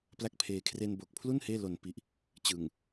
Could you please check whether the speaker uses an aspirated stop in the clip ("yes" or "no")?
yes